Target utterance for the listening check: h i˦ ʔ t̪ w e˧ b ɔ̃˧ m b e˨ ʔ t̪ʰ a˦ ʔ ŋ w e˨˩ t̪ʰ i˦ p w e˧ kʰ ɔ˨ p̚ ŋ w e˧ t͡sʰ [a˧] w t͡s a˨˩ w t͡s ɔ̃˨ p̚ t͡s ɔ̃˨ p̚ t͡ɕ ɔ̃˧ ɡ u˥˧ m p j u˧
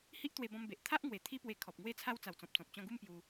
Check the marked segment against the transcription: correct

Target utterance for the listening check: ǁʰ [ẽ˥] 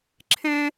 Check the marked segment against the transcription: correct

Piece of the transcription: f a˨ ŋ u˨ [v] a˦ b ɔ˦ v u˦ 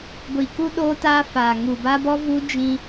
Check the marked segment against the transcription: incorrect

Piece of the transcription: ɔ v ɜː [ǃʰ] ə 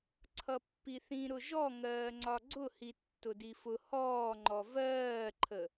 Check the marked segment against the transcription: correct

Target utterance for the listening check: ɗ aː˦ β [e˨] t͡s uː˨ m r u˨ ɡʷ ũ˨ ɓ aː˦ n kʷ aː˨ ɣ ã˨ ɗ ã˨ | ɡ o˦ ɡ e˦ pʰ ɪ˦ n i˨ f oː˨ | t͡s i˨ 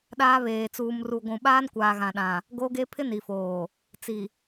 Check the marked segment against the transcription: incorrect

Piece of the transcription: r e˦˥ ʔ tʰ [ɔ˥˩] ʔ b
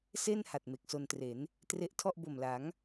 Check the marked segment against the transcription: correct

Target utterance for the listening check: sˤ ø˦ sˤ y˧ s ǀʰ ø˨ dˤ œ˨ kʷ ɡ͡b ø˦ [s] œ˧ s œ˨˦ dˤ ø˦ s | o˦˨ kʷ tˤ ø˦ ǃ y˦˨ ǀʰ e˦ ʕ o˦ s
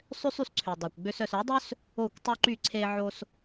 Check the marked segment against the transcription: correct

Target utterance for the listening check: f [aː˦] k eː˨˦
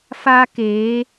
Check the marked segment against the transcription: correct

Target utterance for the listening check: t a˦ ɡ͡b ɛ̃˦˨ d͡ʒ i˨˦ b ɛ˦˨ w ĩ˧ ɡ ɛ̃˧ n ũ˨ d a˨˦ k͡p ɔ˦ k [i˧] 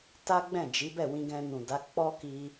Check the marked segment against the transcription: correct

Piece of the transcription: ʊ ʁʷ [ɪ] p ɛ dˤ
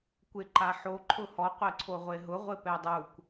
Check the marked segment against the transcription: correct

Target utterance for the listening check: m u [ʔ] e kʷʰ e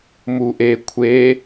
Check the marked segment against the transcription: correct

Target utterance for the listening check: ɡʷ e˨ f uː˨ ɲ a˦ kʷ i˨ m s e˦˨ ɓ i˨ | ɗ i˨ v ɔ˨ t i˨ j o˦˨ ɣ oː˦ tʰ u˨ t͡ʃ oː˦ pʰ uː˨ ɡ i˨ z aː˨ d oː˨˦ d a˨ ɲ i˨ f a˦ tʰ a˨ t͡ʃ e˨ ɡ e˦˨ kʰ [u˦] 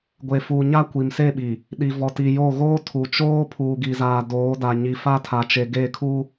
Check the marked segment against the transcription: correct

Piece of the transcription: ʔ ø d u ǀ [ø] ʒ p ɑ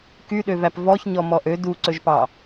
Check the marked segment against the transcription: incorrect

